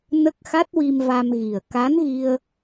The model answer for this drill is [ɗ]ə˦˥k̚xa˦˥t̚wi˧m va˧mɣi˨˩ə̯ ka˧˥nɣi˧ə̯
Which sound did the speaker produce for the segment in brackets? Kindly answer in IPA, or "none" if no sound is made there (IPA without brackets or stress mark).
n